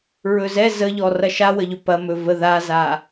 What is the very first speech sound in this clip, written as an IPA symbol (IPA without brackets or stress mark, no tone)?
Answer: ɹ